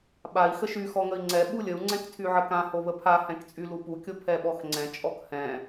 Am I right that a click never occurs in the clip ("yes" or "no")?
no